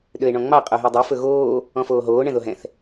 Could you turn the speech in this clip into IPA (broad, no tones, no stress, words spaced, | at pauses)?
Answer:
ɗøe̯ɳɔ̃ŋ͡mɑ qʼoɦydˤy fɵɣoː | ɔ̃foːɦoː ɳɛ̃ðoɦɛ̃θ